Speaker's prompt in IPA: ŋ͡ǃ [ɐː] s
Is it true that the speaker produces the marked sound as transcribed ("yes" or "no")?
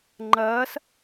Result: yes